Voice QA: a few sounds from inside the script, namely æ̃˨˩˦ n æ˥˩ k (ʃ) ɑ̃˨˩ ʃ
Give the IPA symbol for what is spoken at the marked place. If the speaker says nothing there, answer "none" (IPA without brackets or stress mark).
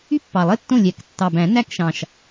ʃ